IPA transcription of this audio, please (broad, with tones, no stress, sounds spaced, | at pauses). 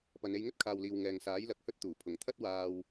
p ɐ˨ n e˧ j ŋ ɵ˥ t̚ kʰ aː˨ w l iː˨ w ŋ ɛː˨ ŋ s aː˨˥ j l ɐ˨˥ k̚ h ɵ˥ t̚ t̪ uː˨˩ pʰ ʊ˨˩ ŋ t̪ʰ ɐ˥ t̚ w aː˧ w